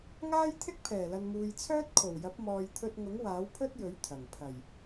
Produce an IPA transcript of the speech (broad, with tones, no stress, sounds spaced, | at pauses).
ŋ aː˥ j t̪ʰ ɪ˥ k̚ pʰ ɛː˨˩ l ɐ˨ n m uː˨ j t͡sʰ œː˥ t̚ kʰ o˨˩ w j ɐ˨˥ p̚ m ɔː˨ j t̪ʰ ɵ˧ t̚ ŋ ʊ˨˥ ŋ w aː˨˥ w pʰ ɵ˥ t̚ j ɵ˨˥ ɥ t̪ʰ ɐ˨˩ ŋ pʰ ɐ˨˩ j